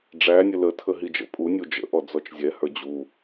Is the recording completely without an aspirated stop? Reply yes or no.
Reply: no